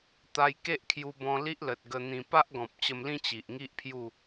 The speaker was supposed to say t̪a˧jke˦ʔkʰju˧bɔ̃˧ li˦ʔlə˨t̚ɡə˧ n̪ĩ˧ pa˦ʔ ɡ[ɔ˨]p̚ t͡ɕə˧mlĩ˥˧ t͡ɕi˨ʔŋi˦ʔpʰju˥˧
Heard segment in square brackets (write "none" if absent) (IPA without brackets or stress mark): ɔ̃˨